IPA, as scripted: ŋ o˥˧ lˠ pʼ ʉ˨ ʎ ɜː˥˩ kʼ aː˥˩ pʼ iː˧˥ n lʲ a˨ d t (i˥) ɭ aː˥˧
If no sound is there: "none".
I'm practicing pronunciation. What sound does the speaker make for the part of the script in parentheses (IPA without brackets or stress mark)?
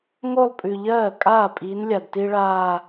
i˥